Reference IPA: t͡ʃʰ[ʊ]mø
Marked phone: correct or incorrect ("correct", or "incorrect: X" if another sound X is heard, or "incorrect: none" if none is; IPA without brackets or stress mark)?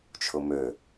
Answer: correct